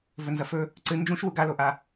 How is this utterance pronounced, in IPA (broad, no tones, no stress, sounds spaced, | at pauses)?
v ɵ n z ɐ f ɵ | ǀ ɨ n d͡ʒ ũ ʃ w u ɡ a l o ʔ a